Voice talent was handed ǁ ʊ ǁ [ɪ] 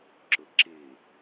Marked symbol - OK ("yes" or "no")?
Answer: yes